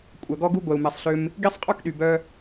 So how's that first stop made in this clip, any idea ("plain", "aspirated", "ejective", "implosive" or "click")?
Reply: ejective